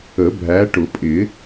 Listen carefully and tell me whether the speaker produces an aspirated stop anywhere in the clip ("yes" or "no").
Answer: no